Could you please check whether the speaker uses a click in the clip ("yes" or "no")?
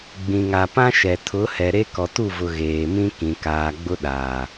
no